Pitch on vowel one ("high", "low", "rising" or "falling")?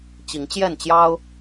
rising